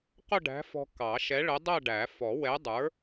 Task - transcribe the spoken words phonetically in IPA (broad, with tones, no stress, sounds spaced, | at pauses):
q ʊ˥˧ ɖ æ̤˨˥ f ɔ̤˧ k ɑ˨˩˦ ʃ ɛ˨˥ ɭ ə˨˥ dˤ æ˥˧ ɖ æ˨˩˦ f ɔ˨˩˦ w ɛ˨˥ dˤ ə˞˨˥